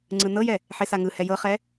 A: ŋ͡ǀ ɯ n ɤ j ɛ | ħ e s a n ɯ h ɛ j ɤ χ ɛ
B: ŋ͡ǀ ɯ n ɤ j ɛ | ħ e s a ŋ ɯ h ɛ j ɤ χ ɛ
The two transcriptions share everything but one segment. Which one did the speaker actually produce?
B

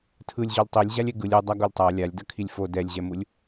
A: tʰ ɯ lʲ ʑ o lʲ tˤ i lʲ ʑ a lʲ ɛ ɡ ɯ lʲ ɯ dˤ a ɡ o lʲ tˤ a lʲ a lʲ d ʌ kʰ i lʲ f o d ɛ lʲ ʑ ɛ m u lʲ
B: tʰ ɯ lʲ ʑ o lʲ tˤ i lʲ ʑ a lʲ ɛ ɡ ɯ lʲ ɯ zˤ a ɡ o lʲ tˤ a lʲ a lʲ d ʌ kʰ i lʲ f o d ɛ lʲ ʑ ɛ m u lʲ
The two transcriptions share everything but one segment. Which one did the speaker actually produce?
A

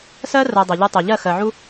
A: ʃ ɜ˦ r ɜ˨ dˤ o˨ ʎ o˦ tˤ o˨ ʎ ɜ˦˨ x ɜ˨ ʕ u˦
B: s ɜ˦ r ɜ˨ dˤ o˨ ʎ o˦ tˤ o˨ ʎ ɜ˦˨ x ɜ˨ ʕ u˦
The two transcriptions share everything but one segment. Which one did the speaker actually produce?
B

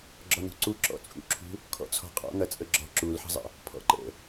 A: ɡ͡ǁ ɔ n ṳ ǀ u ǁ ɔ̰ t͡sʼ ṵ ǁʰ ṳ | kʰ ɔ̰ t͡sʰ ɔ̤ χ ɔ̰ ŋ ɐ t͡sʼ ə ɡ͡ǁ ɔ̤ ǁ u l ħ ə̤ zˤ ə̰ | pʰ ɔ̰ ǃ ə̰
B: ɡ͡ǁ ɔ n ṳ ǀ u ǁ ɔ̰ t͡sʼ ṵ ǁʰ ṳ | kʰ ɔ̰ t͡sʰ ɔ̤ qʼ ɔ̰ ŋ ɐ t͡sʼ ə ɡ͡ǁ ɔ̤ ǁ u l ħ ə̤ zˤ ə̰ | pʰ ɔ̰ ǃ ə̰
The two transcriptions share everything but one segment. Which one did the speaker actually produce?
B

